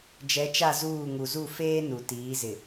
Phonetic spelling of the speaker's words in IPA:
d͡ʒɛ˨˦t͡ʃa˦˨zuː˦˨ ŋu˨zu˦˨feː˦nu˨ tiː˨˦zɪ˨

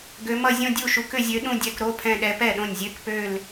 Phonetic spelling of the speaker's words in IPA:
ɡø˧˥mʌ˥˧ zʲõ˥˧dʲu˥˩ʃu˧˥k ʏ˥˧zʲø˧˥ɗũ˥˧dʲɛ˧˥˧k ɾo˧˥˧pʰɛ̃˥˧ɗɛ˧˥ pɛ˥˩ɗõ˥˩nʲzʲø˥˧k pø˥˧l

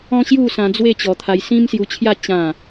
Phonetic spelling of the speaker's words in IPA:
ɔ̃˦ɕju˥˧sã˧ d͡zwe˥˧ t͡ɕɔ˧t̪ʰa˧j sĩ˦msju˧t͡ɕʰja˥˧ t͡ɕã˥˧

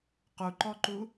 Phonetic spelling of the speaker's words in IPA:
quǃɔǃu

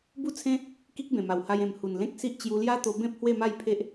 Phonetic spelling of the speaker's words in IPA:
bu˦t͡sʰẽ˦ | ki˦k̚bẽ˨˩ma˨˩wha˧j ẽ˨˩m hu˨˩nlẽ˦k̚si˦ʔ t͡ɕju˧lja˦t̪o˧ bẽ˦p̚ hwe˥˧ma˥˧j pʰe˦ʔ

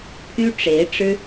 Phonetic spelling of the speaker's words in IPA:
pʰy˥ʈ͡ʂe˧˥ɪ̯ʈ͡ʂɻ̩˥

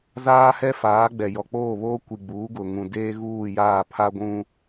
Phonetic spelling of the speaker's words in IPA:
zaː˦hɛ˦faː˨˦ ɡ͡bɛ˨jɔ˨k͡poː˦˨βoː˦ kʷi˨ɡ͡buː˨˦ɡʊ˨ ŋũ˨ deː˦ɣuː˦˨jaː˦˨ pʰa˦ɡʷũ˦

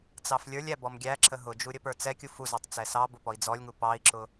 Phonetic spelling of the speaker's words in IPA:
t͡sɑflʲə˞lʲæbɔm ɡʲæǁə ɦʊd͡ʒu ɾʲəpə˞t͡sɛkʲu fuzɑtˤ t͡sɛsɑ bʊpɔi̯d͡zɔlʲŋu pɑi̯ǁʊ

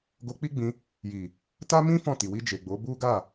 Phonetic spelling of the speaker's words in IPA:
ɡo˧k͡pi˦ɡ͡bĩ˧ | ji˨ | ta˦mĩ˦ fɔ̃˦˨ti˨wi˧ d͡ʒe˨ɡ͡bo˨˦ bu˦ ɡa˦˨

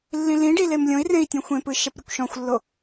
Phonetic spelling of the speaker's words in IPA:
lːĩlĩɖi lemlʲõi̯rẽi̯ tʲõxʷẽpɯ ʃɛpɾʲokʷʃɔ̃xʷlːo

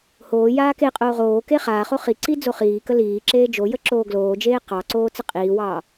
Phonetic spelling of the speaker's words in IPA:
hoː jaːkeqʼoː ʁoːke χaːχo χiǀi d͡zoχiːkə liː ǁeːd͡ʒojə ǁoːɡloːd͡ʒeː qɑǀoː t͡səqʼiːwɑː

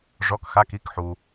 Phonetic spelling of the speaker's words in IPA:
ʐɔ˩˧˩kxa˩˧˩ki˨˥kħu˩

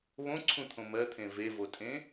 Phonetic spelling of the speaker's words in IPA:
βõǀʰũt̪ʰõ mɜt̪ʰẽ vevotʼẽ

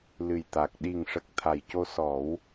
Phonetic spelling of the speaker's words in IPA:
lɨ˨˩jt̪a˨˩k̚ ɗi˨˩ŋʂə˨˩k̚ t̪ʰa˨˩jco˧sɔ˨˩˦w

